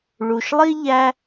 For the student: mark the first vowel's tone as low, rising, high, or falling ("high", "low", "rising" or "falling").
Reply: low